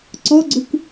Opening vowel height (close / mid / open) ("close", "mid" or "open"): mid